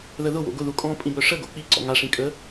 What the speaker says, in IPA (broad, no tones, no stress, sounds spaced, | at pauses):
ð ə ð ʊ w o̰ ɡ ʊ ð u kʼ ɔ̃ pʼ ĩ b œ ʂ ə ɡ o̰ k͡p i ǀ ɔ̰ ŋ a ʂ ĩ kʼ ə